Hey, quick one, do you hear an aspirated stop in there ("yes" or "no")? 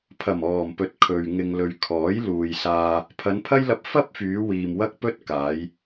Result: yes